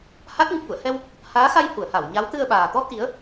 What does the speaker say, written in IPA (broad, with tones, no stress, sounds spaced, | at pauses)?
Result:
h a˦˥ t̚ ŋ ɨ˨˩ k̚ l ṵ˧˨ ə̯ h ɛ˧ w | h aː˨˦ x a˧ j h u˧˩ ə̯ h a˧˩ w ɲ a˨˦ w t̪ ɨ˧ ə̯ ɓ aː˨˩ t̪ ɔ˦˥ t̚ ʔ i˨˦ ə̯